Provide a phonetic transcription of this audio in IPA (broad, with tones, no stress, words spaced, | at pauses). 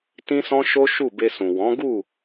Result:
tĩ˦sɔ̃˦ʃo˦ʃu˦˨ be˧sũ˨ wɔ̃˨˦ɡu˦˨